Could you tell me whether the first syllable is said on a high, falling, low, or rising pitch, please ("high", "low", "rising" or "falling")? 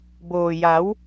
low